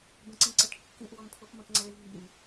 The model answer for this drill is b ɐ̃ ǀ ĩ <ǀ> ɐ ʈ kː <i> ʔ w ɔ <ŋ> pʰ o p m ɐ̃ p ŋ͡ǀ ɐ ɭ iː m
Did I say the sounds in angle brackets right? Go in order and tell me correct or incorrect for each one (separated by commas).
correct, incorrect, incorrect